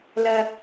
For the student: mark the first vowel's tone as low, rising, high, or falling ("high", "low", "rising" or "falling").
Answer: high